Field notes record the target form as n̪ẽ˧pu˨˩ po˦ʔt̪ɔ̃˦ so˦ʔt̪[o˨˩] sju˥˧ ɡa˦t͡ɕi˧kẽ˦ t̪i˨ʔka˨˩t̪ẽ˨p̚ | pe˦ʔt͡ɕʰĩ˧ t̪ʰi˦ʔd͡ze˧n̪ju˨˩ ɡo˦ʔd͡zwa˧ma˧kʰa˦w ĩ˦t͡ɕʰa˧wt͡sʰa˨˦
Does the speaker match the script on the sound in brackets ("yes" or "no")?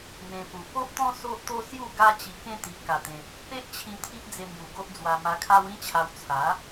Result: no